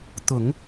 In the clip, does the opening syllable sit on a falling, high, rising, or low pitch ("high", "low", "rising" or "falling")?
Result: low